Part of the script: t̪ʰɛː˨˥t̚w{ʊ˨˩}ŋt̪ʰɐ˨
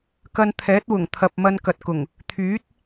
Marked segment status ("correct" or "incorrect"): correct